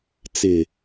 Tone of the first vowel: low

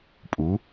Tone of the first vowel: rising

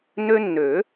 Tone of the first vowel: high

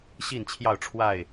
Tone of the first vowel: falling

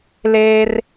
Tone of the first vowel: high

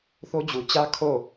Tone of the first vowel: high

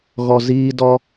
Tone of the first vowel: low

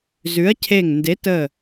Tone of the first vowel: rising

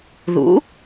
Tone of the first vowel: rising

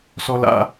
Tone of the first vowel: high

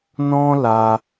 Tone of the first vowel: high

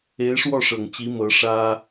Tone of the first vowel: rising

